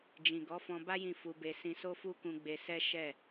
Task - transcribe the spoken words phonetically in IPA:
d͡ʒ ĩ˨ ɡ ɔ˨˦ f ɔ̃˧ b a˦ j ĩ˦˨ f u˧ b e˧ s ĩ˧ s o˦ f u˦ k ũ˧ ɡ͡b e˧ s ɛ˦ ʃ ɛ˦˨

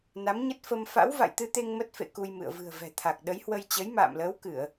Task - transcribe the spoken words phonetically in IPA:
n a˨˦ m ɲ ə˦˥ t̚ f ə˧ m f a̰˧˥ w v a̰˧˨ j t̪ ɨ˧ t̪ e˧ ŋ m ə˦˥ t̚ f ḛ˧˨ k u˧ j m ɨ̰˧˨ ə̯ v ɨ̤˨˩ ə̯ v ɛ̤˨˩ t̪ʰ a˨˩ k̚ ɗ ə˨˦ j h w ə˧ j t͡ɕ ə˨˦ j m a̰ː˧˨ m l əː˨˦ w k ɨ˧˩˨ ə̯

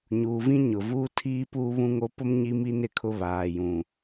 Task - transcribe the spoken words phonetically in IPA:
ɲ uː˨ v ĩ˦ ɲ ʊ˨ v uː˦ tʰ iː˦ p uː˦ β ũ˦ ŋ o˦ p ʊ˦ m ɲ i˦ m i˦ n ɪ˨ kʰ ʊ˦ β aː˨ j ũ˨

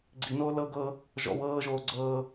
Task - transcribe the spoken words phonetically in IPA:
ɡ͡ǀ i n oː l ɤ ɡ ɤ | ʒ ɔ̰ w ɤː ʒ oː ɡ͡ǀ ɤː

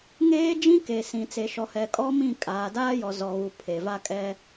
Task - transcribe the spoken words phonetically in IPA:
ŋ eː˦ d͡ʒ ĩ˦ k e˨ s ĩ˨ t͡s e˨ ʃ ɔ˨ h ɛ˨ kʼ ɔ˦ m ĩ˦˨ kʼ aː˨ d aː˦ j ɔ˨ z ɔ˨ ɣ u˨ pʰ e˨ v a˦ kʼ ɛ˦

